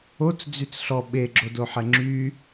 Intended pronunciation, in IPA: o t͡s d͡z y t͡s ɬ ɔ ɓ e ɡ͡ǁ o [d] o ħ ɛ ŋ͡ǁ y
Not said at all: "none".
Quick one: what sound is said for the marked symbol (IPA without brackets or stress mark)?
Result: d